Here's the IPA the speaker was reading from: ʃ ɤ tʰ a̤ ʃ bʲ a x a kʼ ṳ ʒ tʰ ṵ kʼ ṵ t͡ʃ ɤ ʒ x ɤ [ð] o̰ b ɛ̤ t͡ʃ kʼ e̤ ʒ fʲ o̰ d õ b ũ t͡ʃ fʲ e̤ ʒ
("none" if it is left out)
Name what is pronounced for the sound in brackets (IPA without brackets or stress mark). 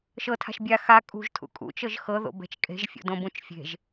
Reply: ð